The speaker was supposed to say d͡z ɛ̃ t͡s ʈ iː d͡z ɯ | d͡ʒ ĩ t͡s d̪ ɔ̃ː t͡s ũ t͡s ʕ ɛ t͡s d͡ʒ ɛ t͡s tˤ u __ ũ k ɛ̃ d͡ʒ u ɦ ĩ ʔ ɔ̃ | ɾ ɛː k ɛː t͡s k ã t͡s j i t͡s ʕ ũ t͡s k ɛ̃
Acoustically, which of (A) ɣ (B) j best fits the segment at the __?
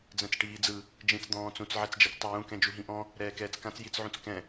B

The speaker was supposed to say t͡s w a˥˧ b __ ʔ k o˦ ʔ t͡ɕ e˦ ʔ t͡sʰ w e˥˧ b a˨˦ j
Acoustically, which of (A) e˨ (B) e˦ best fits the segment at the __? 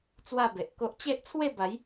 A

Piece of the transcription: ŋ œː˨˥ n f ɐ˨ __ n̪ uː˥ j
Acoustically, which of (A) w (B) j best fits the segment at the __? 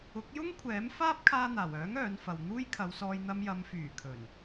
A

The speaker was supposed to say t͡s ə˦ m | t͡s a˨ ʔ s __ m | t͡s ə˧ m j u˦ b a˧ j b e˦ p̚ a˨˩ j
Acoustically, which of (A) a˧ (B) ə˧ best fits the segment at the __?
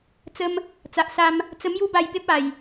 A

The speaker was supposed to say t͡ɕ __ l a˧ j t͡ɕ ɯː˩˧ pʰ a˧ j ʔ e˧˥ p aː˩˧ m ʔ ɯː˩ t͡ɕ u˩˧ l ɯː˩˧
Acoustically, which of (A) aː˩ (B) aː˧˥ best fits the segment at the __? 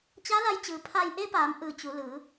B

